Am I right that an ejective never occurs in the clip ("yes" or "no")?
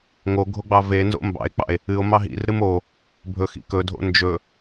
yes